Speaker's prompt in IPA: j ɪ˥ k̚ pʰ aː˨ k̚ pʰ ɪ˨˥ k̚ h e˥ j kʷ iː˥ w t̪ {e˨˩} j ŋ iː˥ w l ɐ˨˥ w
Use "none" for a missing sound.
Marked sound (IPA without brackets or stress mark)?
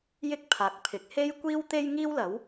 e˥